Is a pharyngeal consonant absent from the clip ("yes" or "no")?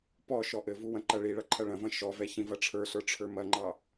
yes